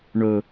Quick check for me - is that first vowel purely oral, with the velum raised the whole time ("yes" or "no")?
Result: yes